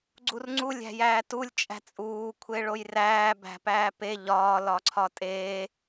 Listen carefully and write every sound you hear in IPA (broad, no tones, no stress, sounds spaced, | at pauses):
ɡ͡ǀ u r ŋ͡ǀ u lʲ æ̤ j æː t u lʲ t͡ʃʼ æ̤ t͡sʼ uː kʷʰ e ɭ o j r æː b æ̤ p æː p e ʎ ɒː l ɒ ǀʰ ɒ tʼ eː